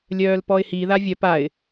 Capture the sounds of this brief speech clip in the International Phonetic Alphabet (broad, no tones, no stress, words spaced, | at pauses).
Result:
lʲœːlpɔɪ̯hi ðavʲœp aɪ̯